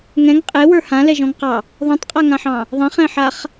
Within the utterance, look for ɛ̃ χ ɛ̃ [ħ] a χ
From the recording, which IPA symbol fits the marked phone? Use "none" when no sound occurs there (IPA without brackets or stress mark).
ħ